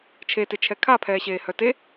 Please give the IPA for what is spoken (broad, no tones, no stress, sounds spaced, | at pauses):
t͡ʃʰ e t e t͡ʃʰ ɛ kʰ a pʰ ɛː ɕ eː h œ t e